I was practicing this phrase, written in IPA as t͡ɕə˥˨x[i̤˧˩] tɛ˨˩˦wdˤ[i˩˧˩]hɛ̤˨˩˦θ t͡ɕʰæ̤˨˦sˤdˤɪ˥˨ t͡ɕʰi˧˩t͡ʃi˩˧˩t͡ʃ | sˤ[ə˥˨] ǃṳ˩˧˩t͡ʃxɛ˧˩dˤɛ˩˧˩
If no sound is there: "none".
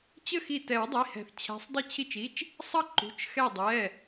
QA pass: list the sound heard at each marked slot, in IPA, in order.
i˧˩, i˩˧˩, ʌ˥˨

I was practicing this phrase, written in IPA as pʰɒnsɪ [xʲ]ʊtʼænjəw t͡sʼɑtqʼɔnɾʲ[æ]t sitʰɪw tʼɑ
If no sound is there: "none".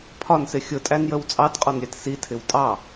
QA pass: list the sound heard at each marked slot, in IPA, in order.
xʲ, æ

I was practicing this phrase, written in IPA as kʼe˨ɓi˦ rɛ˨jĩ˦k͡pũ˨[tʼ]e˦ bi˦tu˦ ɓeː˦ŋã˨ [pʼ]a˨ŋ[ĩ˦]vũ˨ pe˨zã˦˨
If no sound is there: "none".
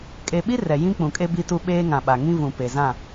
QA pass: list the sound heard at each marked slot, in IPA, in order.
kʼ, ɓ, ĩ˦

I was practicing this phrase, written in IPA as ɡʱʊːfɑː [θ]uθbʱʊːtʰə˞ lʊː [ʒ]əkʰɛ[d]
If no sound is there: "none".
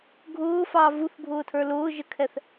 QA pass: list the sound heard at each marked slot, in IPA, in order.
v, ʒ, θ

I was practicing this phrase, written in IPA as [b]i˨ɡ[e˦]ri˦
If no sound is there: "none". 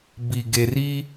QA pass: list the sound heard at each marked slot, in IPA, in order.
b, e˨

